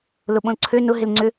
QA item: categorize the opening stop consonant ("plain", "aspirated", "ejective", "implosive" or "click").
implosive